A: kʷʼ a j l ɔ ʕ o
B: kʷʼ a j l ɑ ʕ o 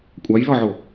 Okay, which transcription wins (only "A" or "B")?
A